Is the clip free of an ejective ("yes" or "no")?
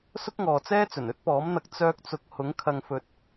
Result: yes